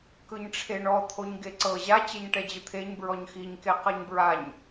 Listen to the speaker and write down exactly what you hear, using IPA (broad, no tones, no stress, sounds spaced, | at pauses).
k ɯ ɲ ʈ͡ʂʰ e ɳ ɔ t̪ʰ o ɲ ɡ e ǀ ɤ ʑ a t͡ɕ e ɲ ʈ ɛ d͡ʑ ɯ t̪ʰ e ɲ b ɹ ɔ ɲ x i ɲ k e q ɤ ɲ b ɹ a ɲ